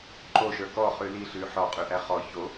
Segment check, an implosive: absent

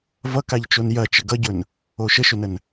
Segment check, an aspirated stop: absent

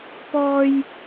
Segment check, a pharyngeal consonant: absent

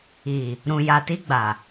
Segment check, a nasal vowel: present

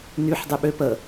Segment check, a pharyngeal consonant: present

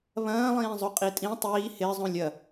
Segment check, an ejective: present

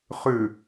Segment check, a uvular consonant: present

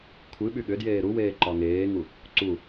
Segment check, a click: present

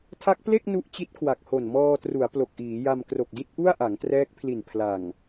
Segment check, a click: absent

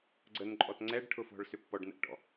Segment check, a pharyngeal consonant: absent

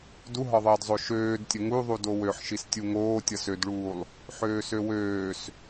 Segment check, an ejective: absent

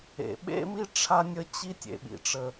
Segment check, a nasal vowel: absent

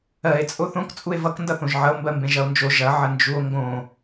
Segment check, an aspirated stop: absent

